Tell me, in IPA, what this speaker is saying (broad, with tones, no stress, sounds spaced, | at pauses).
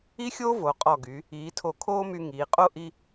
i˥ xʲ o˥ v o˩˧ qʼ ɔ˧˩ ɡ y˩˧ | iː˩˧ tʰ o˧˩ kʰ oː˥ m y˧ ŋ iː˩˧ qʼ o˥ ʔ i˧